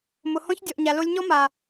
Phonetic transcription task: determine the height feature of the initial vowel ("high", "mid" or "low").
high